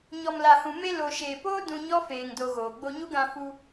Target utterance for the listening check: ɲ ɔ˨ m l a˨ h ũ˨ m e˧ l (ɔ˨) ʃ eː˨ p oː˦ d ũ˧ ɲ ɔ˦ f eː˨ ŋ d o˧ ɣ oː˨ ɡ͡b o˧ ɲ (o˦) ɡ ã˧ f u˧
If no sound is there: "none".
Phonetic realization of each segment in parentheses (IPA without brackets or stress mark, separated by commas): o˨, u˦